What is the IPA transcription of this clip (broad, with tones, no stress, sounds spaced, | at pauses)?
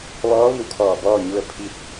ʋ ɔː˧˥ ʋ i˧˩ w kʰ ɔː˧˩ b ɔː˥˨ ɲ u˧ ə̯ pʰ i˧ t̚